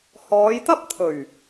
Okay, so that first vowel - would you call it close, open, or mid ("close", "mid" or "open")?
mid